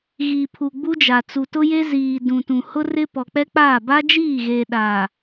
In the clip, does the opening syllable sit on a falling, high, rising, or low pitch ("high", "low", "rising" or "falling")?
low